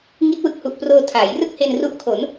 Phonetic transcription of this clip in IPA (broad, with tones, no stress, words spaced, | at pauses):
ŋi˦˥t̚wɯ˨˩k̚hu˨˩ʔproː˧ tʰaː˩˦j rɯ˥˩k̚he˧nru˦˥ʔkʰo˩˦n